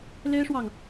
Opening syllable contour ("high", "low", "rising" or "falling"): high